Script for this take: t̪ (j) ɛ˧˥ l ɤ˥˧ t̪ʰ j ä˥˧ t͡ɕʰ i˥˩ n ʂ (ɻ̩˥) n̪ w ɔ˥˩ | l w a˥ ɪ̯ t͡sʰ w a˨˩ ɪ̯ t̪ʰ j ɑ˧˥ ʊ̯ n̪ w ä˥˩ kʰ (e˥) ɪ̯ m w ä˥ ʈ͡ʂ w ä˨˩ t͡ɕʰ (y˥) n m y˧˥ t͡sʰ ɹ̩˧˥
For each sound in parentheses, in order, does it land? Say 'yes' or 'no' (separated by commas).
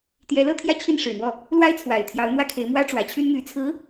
yes, no, no, yes